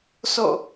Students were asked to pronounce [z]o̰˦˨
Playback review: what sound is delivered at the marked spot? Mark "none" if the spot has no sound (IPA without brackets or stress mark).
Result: s